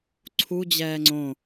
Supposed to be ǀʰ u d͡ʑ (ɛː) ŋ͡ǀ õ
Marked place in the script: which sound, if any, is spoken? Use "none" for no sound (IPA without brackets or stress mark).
ɛː